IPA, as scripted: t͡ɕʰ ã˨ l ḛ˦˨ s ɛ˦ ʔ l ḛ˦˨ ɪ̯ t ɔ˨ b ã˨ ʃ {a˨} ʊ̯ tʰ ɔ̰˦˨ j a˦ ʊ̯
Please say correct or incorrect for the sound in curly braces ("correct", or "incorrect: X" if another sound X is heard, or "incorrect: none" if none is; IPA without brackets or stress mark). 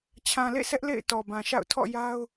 incorrect: a̰˦˨